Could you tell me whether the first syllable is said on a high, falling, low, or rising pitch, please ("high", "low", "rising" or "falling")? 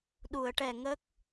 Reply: low